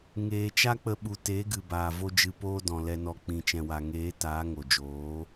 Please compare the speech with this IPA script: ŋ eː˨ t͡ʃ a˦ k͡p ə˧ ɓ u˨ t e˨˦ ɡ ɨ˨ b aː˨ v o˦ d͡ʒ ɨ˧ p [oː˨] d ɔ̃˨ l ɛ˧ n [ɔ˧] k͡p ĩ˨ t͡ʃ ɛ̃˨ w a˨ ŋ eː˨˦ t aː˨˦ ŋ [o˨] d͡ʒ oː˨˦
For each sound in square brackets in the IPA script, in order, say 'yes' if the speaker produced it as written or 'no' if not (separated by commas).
no, yes, yes